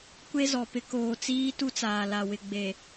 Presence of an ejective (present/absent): absent